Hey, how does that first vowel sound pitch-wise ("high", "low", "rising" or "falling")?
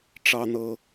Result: low